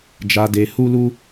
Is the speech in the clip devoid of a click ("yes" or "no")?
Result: yes